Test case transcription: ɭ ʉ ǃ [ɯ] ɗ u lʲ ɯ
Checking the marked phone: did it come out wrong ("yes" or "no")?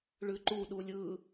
yes